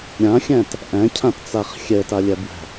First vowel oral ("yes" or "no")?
no